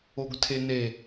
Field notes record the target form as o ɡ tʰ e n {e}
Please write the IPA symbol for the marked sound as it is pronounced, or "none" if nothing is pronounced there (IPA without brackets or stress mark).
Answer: e